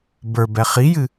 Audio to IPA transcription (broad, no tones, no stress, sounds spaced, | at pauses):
b ə˞ b ɛ χ i j ɨ